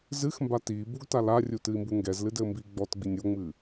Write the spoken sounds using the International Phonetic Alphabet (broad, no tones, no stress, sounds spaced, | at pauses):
z ɨ x m b a t iː b u ɡ t a l a rʲ u t ɨ i̯ m b u ŋ ɡ ɛ z l ɨ d ɘː m b iː ɡ͡b ɔ t ɡ͡b i nʲ o ŋ͡m ɨː